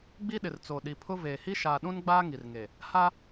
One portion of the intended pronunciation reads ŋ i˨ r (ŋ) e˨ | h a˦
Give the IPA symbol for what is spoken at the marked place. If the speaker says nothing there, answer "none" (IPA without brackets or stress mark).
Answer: ŋ